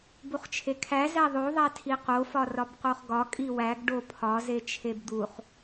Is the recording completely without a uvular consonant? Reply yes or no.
no